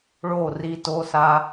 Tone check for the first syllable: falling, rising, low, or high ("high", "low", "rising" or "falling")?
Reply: falling